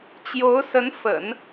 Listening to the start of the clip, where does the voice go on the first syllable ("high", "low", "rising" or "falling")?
rising